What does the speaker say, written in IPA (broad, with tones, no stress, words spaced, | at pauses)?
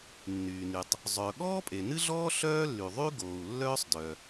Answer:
nːyː˩ny˩tˤ | zˤœ˩ ɠɔː˥pʼe˩nɨ˥ɮɔː˥ ɬœː˥lːy˩ðˤy˥ ɡoː˩u̯lːœː˥sˤdœ˩